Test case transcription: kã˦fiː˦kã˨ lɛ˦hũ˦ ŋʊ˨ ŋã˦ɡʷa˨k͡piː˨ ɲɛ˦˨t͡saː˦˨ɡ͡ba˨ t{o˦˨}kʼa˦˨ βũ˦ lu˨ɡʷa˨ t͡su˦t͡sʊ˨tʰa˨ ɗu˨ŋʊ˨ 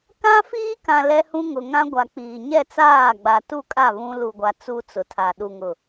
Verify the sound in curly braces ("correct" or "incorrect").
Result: incorrect